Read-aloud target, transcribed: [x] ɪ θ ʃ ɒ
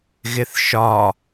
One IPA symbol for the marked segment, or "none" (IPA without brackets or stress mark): ɣ